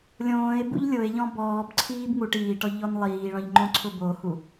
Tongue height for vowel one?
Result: mid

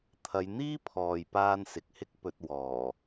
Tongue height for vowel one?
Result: low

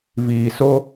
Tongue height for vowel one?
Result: high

